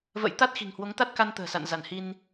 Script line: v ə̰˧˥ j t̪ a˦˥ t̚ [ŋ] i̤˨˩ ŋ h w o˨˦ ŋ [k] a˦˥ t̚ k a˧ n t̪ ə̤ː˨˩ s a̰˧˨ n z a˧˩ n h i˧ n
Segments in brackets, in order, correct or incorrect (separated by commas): incorrect, incorrect